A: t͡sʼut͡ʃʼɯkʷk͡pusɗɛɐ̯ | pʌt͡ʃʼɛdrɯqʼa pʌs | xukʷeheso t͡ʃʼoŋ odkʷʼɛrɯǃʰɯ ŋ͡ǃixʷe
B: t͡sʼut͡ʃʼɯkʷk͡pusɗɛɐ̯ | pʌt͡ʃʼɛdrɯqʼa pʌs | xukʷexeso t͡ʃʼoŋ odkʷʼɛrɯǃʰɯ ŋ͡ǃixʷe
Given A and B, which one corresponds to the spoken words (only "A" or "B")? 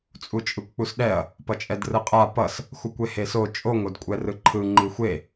A